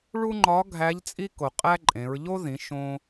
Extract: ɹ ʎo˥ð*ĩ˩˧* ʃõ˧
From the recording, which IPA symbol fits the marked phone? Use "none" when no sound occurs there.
ĩ˩˧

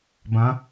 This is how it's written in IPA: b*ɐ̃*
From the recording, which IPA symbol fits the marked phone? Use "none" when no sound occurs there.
ɐ̃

